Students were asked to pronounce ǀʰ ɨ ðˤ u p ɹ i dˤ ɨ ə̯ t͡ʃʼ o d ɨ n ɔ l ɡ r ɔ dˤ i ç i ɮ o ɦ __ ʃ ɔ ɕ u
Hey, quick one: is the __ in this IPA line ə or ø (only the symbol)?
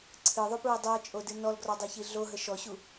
ə